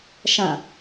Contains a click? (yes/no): no